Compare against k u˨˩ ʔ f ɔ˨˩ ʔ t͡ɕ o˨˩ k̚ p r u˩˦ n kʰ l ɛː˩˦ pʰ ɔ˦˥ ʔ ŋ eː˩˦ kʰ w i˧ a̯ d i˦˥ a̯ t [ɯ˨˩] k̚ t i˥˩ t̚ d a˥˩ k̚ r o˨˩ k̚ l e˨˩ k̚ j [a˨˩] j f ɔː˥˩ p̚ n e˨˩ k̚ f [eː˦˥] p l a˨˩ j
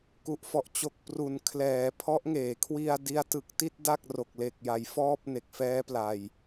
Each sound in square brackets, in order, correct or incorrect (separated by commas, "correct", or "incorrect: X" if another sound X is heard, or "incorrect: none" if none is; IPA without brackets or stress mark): correct, incorrect: a˩˦, incorrect: ɛː˦˥